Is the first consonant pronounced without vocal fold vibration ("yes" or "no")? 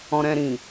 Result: no